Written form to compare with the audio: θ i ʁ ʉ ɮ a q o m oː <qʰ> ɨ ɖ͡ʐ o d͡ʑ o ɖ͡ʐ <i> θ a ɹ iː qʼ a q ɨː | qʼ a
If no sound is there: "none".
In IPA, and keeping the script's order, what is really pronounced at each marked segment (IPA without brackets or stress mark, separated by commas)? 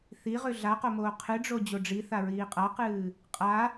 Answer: qʰ, i